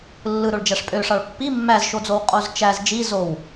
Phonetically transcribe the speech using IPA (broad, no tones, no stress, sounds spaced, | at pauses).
lː ɯ ɾ o ɭ d͡ʒ æ ʂ pʼ ø ʂ ɑ ɭ pː i mː æ z ʃ o d͡z o w qʼ o z t͡ʃ æ z d͡ʒ i z o w